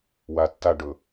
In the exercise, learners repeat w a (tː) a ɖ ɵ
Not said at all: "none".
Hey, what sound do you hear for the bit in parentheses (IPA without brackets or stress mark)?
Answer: tː